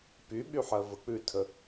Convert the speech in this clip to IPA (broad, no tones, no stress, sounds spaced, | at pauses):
p y ɓ y ħ ɜ v ə k͡p ʉ tʰ ə